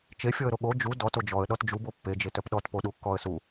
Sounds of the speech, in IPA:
t͡ʃ e fʲ ɔ ə̯ ɾ o ɠ o d͡ʒ u d ɔ t o d͡ʒ ɔ ə̯ ɗ ɔ t d͡ʒ u b o pː e d͡ʒ e t œ p ɗ ɔ t p o ɗ u kː ɔ ə̯ s u

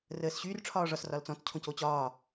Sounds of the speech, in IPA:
r əː s ɕ y r ʈ͡ʂʰ ɒː ʐ ɒ s r ɒ l t͡s ɔ̃ t͡s cʰ õ c o t͡ɕ ɒː

